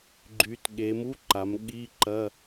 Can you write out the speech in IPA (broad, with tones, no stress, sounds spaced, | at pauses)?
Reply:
ɡ͡ǃ y˩˧ t ɠ e˩˧ m u˧˥˧ ǃ a˩˧ m ɠ i˧˥˧ ǃ ɐ˧˥˧